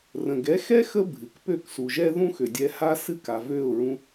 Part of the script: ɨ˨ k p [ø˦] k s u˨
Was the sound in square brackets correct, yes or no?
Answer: no